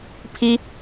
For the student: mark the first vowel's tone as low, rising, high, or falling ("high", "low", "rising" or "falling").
high